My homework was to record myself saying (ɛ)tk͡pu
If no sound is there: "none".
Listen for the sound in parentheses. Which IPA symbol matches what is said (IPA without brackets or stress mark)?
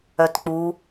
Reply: œ